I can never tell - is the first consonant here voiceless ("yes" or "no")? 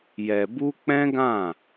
no